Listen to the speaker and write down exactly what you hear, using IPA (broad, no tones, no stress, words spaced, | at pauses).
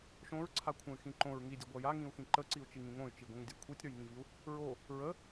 ʃõɹǀʰakʷʰə̃y̯xĩ ǃõɹŋidʲəɡʷa jaŋĩu̯xĩ ǃəǀiu̯t͡ʃiŋĩ ŋõy̯t͡ʃiɡʷĩŋdʲa kʷʰitʲɾə˞jŋĩviu̯ | ɹo | ɹə